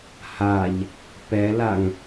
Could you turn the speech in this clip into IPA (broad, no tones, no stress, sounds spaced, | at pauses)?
h a ʎ | p ɛ l a ŋ